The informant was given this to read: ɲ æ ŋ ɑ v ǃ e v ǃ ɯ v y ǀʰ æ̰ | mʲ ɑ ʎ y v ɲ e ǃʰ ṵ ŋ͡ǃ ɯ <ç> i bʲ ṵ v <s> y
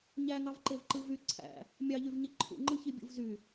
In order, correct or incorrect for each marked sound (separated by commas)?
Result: correct, incorrect